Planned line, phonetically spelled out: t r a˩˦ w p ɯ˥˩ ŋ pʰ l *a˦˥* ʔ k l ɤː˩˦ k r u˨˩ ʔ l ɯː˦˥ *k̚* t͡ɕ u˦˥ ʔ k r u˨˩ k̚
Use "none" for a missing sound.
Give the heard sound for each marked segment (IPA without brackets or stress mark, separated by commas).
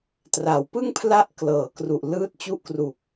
a˦˥, t̚